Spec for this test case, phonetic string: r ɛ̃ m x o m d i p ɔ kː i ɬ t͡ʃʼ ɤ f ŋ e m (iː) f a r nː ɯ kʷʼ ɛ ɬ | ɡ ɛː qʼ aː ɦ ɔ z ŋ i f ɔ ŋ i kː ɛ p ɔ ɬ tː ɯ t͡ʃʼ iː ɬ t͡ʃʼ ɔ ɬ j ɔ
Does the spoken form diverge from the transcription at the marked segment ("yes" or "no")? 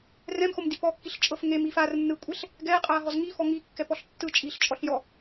no